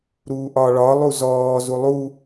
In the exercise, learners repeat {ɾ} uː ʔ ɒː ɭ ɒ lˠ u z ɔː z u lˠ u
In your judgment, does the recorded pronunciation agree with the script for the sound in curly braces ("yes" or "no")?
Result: yes